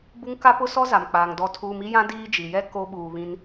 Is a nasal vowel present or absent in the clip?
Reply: present